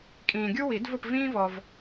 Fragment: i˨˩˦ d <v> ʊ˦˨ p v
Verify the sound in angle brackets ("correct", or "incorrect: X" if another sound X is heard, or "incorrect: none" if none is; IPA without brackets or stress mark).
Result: correct